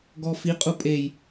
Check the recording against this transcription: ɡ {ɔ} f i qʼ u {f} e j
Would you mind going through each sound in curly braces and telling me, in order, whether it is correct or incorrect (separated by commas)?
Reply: correct, incorrect